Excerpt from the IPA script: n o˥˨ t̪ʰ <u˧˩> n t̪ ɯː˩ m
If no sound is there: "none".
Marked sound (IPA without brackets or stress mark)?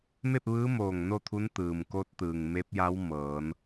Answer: u˧˥